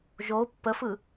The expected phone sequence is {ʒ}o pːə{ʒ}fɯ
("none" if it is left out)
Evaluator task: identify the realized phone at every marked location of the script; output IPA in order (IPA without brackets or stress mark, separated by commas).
ʒ, none